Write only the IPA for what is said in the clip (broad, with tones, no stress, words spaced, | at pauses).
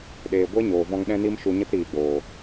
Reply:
ɗeː˨ ɡʷe˦ɲoː˨ vɔ̃˦ŋ ɗɛ̃˦ni˦mʃu˧ ɲə˦tɾiː˨ɡ͡boː˨